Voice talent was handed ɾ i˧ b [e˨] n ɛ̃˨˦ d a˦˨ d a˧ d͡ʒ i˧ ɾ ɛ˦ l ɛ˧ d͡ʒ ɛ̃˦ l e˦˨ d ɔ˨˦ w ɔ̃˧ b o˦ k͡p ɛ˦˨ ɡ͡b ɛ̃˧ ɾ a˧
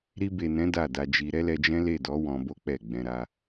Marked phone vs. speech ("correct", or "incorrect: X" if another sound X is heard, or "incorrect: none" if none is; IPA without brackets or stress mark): correct